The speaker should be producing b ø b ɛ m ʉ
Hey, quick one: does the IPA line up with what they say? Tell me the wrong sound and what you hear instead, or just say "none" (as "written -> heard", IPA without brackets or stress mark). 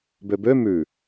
ɛ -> ø